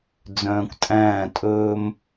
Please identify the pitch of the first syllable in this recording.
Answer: low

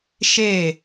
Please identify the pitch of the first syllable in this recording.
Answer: falling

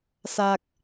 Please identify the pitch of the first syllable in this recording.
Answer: low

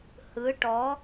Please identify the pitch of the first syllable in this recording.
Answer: rising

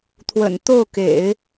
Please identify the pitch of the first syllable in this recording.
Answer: low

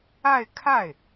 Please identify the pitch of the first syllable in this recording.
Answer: falling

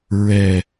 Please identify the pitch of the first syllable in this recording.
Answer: low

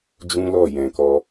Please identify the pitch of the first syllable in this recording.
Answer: high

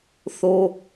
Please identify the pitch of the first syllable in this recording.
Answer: high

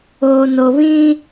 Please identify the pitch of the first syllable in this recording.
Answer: low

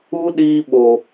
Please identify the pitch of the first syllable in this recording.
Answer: high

